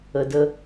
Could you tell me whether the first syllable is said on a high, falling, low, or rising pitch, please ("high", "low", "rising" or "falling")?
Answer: low